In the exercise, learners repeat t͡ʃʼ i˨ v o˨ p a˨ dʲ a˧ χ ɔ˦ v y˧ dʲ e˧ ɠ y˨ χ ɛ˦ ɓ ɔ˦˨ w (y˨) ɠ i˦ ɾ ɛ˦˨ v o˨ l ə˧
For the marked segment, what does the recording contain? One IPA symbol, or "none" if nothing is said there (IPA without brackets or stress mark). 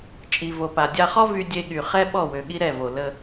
ø˨